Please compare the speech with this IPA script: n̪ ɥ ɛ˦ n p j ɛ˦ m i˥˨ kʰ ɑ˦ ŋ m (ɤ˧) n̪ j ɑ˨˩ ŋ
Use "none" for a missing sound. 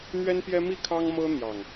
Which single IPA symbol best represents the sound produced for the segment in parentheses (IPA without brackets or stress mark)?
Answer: ɤ˦